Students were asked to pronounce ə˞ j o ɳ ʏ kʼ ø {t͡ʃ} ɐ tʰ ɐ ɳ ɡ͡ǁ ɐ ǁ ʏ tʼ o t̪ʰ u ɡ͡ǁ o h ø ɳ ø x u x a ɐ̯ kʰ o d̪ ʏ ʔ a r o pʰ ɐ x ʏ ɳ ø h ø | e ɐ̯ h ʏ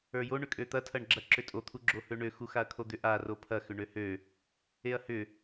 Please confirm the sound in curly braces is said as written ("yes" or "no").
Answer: no